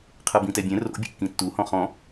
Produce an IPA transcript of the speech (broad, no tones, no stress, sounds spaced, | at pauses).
qʰ ɤ b ĩ t ɛ bʲ ɛ̃ r o̰ bʲ o̰ kː ĩ tː u h ɔ̃ χ ɔ̃